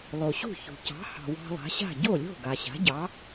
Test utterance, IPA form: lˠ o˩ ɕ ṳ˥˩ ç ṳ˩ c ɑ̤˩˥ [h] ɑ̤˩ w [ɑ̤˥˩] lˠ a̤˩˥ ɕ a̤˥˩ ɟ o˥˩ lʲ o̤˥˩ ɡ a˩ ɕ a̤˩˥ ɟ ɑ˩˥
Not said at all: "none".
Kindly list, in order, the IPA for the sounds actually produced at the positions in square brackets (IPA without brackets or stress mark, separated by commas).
h, ɑ̤˧